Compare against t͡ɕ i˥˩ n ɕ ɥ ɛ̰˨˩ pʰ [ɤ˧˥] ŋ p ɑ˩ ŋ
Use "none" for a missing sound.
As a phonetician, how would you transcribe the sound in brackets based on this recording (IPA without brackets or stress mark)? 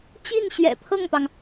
ɤ˥˩